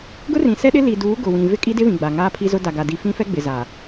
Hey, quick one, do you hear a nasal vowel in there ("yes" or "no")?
yes